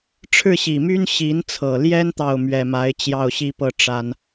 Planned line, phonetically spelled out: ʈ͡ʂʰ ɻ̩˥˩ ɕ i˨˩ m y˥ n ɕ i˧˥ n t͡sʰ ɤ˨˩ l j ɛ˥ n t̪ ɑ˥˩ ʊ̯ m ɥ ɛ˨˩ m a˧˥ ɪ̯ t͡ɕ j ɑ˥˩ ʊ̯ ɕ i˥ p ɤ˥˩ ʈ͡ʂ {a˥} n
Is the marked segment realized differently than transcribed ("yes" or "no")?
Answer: no